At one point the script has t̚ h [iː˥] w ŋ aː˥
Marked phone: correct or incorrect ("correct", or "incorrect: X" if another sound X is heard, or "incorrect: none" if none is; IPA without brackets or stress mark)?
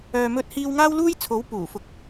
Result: correct